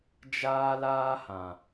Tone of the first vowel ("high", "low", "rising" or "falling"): high